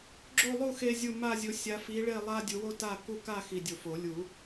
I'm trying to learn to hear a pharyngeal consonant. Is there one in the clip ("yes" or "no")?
no